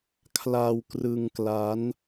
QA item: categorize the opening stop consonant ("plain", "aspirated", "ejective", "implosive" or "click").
aspirated